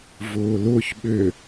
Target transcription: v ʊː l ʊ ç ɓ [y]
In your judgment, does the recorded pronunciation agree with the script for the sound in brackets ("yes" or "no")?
no